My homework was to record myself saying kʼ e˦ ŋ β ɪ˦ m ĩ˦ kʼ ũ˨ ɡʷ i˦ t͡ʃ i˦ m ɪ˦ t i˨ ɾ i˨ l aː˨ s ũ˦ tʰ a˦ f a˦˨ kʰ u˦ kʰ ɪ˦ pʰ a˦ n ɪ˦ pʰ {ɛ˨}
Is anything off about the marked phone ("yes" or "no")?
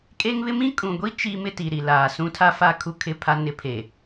yes